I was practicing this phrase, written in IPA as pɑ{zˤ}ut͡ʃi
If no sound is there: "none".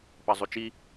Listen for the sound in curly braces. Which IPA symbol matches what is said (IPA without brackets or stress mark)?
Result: zˤ